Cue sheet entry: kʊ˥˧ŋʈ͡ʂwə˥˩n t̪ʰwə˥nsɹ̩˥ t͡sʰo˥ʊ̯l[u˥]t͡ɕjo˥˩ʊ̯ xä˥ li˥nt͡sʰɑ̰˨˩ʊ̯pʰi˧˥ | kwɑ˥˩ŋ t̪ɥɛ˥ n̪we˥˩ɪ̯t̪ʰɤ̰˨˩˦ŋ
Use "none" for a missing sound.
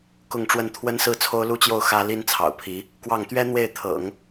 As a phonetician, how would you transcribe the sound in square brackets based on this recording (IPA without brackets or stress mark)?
u˥